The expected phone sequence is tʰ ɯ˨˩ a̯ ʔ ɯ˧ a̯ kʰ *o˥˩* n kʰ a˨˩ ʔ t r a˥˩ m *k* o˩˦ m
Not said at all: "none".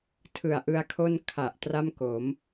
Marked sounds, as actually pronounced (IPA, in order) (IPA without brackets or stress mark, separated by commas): o˥˩, k